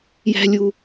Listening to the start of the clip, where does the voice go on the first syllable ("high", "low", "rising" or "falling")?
high